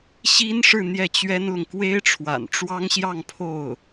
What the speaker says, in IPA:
ɕ i˥ n ʂ ɻ̩˥˧ n̪ j ɛ˥˩ t͡ɕ ɥ ɛ˥ n l ʊ˨ ŋ k w e˥ ɪ̯ ʈ͡ʂʰ w a̰˨˩ n ʈ͡ʂ w ɑ˥ ŋ ɕ j ɑ˥˧ ŋ pʰ o˥˩ ʊ̯

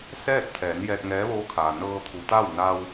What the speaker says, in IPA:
s ɛː˥˨ t̚ t̪ʰ ɛː˩˧ n j ɛː˧ t̚ ŋ ɛː˧˥ ʋ oː˧˥ kʰ aː˩ n ɤː˧ t̪ʰ u˩˧ t̪ a˥˨ w n a˧ w

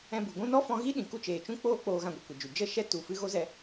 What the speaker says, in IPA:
ɛ̃˧ b u˨ ɡʷ ũ˦ n ɔ˦ f ɔ̃˧ ɣ i˦ ɗ ĩ˨ k u˦ t͡ʃ eː˨ t͡ʃ ũ˦ k͡p oː˦ k͡p oː˧ ɣ ã˧ ɡʷ ɛ˨ kʷ ɛ˨ d͡ʒ u˨ d͡ʒ ə˦ ʃ ɛ˦ t u˨ f ɨ˧ ɣ o˦ z ɛ˦

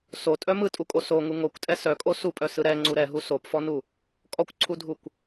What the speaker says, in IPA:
s o tʼ œ m ɯ tʼ u kʼ o s o ŋ u ŋ o kʷ tʼ ɛ s œ kʼ o s u pʼ œ s ɯ ɾ ɛ ŋ͡ǀ u ɾ ɛ ɦ u s o p f ɔ n u | kʼ ɔ kʷ ǀʰ u dʱ u kʷ

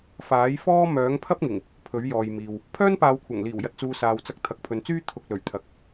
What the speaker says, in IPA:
f aː˨˥ j f ɔː˥ m œː˨˥ ŋ pʰ ɐ˥ p̚ ŋ ɪ˨˩ ŋ | pʰ ɵ˨˥ ɥ j ɔː˨ j m iː˨ w | pʰ œː˥ n p aː˨˧ w kʷʰ ɐ˨˩ ŋ l iː˨˩ w j ɐ˨ t̚ t͡s uː˨ s aː˨ w t͡s ɐ˧ k̚ t̪ʰ ɐ˨ k̚ pʰ ɵ˨ n t͡s yː˥ t̪ʰ ʊ˨ k̚ l ɵ˨˩ ɥ t̪ʰ ɐ˨ k̚

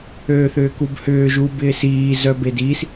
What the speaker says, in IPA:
øː θ ʏː k u b h ʏː ʒ u b ɪː s iː z œ b e d i s

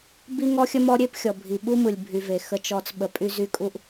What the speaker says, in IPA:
b i˦ ŋ ɔ˦ xʲ ə˦ m ɔ˦ ɾʲ e˦ p xʲ ɔ˨ bʱ i˨ ɓ u˦ m ɯ˨ lʲ bʱ y˧ v e˨ x ə˧ t͡ʃ ɔ˧ t͡s ɓ ə˧ pʼ y˦ z y˦ kʼ u˦ ʔ

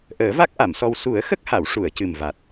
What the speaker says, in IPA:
ʔ əː˨˩˦ v a˦˥ k̚ ʔ a˨˩˨ m s ɔ˧ w s u˨˩˦ ə̯ x ə˦˥ k̚ h a˨˩˨ w ʂ u˨˩˨ ə̯ c ɨ˨˩ m v a˨˩ t̚

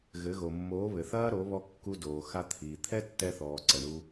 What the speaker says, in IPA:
ɣ ɘ˨˦ ɣ o˨ mː oː˨˦ β ɘ˨ θ ɐː˦ ɾ o˨˦ β ɔ˧ kː u˧ d oː˨ x a˧ t̪ʰ iː˨ t̪ʰ ɛ˦ tː ɛ˧ θ ɔː˨ ǀ ɐ˨ ɳ u˧

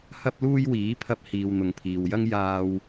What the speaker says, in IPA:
h ɐ˥ p̚ l uː˥ j w iː˨˥ pʰ ɐ˧ p̚ h iː˨ w n̪ ʊ˨ ŋ pʰ iː˨ w j ɐ˥ ŋ j aː˧ w

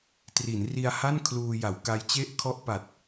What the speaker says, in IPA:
t r i˩˦ n r i˧ a̯ h a˥˩ n kʰ l uː˧ j a˩˦ w k a˦˥ j t͡ɕ e˥˩ ʔ kʰ ɔ˥˩ ʔ p a˨˩ t̚

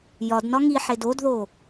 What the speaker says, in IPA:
j ɒ d n ɒ ŋ i ħ e d o d ð o

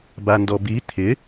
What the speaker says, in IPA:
b a n d ɔ b i t̪ʰ ɪ

